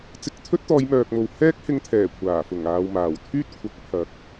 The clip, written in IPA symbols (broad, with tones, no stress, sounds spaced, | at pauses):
t͡s ɪ˧ k̚ t̪ʰ ɵ˥ t̚ t̪ ɔː˨˧ j m œː˧ k̚ m o˧ w h ɛː˥ k̚ h ɪ˧ ŋ t̪ʰ ɛː˨˩ kʷʰ aː˨˩ f ʊ˨˩ ŋ aː˨ w m aː˨˩ w t̪ʰ yː˥ t̚ kʷʰ ɐ˨˥ k̚ pʰ ɐ˨˥ k̚